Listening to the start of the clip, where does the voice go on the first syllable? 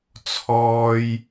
high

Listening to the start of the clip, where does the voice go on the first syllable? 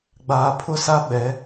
low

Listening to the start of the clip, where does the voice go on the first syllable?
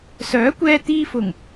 rising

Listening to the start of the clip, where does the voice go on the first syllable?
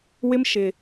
high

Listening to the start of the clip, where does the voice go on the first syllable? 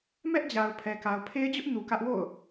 high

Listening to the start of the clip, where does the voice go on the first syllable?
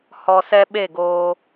low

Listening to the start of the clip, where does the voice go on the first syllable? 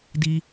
high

